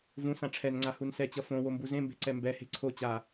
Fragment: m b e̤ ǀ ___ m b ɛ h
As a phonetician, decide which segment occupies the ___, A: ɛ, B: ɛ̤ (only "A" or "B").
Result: A